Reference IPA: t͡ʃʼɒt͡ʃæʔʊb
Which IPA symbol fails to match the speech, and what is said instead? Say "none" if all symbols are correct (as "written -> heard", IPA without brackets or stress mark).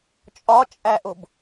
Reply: t͡ʃ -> t͡ʃʼ